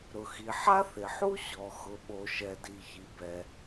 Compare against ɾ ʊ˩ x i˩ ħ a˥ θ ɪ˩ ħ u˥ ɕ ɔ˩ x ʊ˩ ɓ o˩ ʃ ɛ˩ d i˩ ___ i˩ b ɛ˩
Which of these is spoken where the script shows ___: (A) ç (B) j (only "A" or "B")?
A